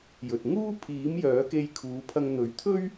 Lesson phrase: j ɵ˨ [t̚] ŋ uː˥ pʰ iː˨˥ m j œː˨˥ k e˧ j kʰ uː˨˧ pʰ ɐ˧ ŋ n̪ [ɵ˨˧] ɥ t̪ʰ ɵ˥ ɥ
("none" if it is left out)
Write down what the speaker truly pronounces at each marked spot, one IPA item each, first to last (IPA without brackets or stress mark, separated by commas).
t̚, ɵ˨˧